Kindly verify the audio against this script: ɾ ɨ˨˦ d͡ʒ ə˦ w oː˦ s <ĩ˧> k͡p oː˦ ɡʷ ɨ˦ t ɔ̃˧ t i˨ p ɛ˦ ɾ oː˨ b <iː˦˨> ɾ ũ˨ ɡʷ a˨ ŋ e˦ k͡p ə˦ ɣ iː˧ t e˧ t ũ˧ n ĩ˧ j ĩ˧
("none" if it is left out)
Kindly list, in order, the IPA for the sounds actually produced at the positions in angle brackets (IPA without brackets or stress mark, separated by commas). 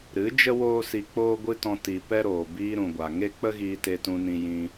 i˧, iː˧